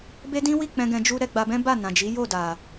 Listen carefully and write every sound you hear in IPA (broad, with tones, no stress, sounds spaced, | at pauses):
b e˦ d ĩ˦ w i˦˨ k͡p ɛ̃˧ ɡ ɛ̃˧ d͡ʒ u˦ ɾ ɛ˧ ɡ͡b a˧ b ɛ̃˦ b a˦˨ n ã˨ d͡ʒ i˨˦ j o˦˨ d a˨